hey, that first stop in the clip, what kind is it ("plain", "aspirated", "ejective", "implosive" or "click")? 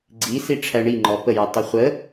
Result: click